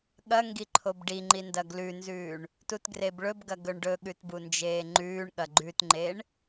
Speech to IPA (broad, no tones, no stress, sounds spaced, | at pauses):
ɠ ɐ ŋ ɡ i ǃʰ o b ɖ i ŋ͡ǃ i n d ɐ ɡ l ʉ n z ʉː ɳ | t u t ɡ r e b ɭ ɵ b ɡ ɐ ɡ ɵ ɳ ɖ ɵ ɠ ʉ t b u n d͡ʒ eː ŋ͡ǃ ʉː ɳ ɠ ɐ ɡ͡ǃ ʉ t ŋ͡ǃ e ɳ